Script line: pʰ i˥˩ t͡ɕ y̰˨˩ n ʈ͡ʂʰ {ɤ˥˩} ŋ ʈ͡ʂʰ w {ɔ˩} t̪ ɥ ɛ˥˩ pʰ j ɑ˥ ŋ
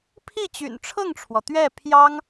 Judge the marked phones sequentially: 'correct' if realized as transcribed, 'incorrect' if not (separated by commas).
correct, correct